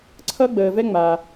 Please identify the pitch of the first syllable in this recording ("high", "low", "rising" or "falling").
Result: high